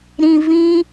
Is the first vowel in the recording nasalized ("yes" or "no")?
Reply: yes